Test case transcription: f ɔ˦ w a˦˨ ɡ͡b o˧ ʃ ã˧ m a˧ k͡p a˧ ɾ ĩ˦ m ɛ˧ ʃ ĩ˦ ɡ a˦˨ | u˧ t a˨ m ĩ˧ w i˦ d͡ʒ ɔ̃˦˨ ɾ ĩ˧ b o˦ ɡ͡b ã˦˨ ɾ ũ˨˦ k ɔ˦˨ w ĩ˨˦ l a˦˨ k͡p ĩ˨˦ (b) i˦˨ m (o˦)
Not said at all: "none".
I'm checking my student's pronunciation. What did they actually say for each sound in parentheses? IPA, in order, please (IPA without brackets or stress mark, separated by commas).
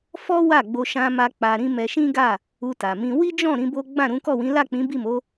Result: b, o˨˦